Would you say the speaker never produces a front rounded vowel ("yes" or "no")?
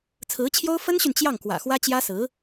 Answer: no